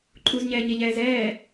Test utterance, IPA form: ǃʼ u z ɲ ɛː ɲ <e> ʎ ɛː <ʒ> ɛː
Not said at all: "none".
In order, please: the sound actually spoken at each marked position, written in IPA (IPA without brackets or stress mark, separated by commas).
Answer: e, z